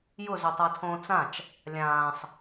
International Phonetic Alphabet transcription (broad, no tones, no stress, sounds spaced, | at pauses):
j ʊ z o tˤ a tʰ õː t͡s ã t͡ʃ | lʲ ãː sˤ